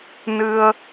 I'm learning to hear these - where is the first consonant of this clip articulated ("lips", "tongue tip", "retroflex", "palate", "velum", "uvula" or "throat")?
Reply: tongue tip